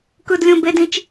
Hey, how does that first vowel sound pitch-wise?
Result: high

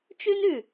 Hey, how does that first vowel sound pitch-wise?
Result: high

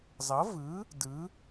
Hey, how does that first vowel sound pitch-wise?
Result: rising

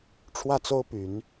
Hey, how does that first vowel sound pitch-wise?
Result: falling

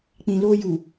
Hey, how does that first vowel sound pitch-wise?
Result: low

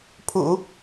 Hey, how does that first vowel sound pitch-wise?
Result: low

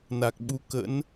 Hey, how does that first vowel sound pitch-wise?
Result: low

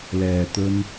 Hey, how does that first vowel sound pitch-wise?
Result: low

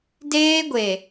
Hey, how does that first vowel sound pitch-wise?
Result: high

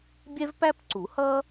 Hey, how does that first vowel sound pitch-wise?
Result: high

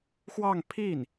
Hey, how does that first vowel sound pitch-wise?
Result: falling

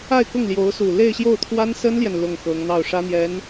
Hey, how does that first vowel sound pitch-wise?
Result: falling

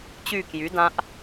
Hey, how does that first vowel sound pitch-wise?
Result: falling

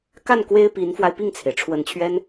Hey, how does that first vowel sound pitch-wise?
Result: falling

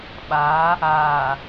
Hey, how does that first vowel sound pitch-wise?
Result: rising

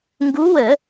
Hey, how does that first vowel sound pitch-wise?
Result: rising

